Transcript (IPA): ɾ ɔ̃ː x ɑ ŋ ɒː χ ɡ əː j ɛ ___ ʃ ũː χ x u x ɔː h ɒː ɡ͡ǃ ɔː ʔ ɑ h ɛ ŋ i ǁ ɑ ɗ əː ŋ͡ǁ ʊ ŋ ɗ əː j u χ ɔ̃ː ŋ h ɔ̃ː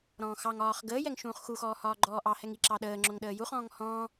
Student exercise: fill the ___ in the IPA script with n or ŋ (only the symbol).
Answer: ŋ